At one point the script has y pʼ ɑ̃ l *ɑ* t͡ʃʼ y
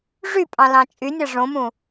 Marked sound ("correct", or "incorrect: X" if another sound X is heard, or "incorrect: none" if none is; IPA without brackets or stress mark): incorrect: ɑ̃